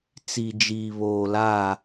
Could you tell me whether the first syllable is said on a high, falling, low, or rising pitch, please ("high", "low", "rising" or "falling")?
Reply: low